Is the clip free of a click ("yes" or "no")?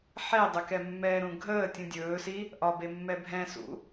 yes